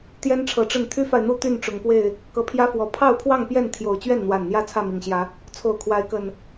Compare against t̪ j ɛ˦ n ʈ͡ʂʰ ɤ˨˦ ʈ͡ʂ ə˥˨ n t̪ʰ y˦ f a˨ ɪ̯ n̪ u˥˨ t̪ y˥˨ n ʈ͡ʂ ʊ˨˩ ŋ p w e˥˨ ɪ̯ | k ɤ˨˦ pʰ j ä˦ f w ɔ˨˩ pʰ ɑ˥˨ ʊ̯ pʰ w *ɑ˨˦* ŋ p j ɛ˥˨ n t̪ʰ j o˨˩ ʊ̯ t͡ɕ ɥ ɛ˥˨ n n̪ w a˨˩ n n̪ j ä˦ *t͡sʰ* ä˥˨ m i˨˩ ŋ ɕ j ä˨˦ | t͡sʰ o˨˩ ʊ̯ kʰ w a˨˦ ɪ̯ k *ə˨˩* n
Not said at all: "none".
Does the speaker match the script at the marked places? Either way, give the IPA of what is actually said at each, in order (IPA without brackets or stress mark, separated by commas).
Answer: ɑ˥˨, t͡sʰ, ə˨˩